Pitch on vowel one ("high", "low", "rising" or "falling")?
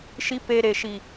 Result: low